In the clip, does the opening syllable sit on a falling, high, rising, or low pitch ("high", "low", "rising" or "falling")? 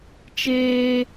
high